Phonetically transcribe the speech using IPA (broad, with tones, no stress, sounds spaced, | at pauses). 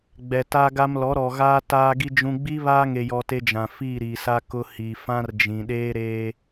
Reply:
ɡ͡b ɛ˨ t a˦ ɡ a˦ m l ɔ˨˦ ɾ ɔ˨ ɣ aː˦ t aː˦ ɡ i˦ d͡ʒ ũ˦ ɡ͡b i˦ β aː˦ ŋ e˨ j ɔ˨ t e˦ d͡ʒ ã˨ f i˦˨ ɾ i˨ s a˦ k ʊ˦ h i˨ f ã˦ r d͡ʒ ĩ˨ ɗ eː˦ ɾ eː˦